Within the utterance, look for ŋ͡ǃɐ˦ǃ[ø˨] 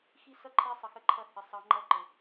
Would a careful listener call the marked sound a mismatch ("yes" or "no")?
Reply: yes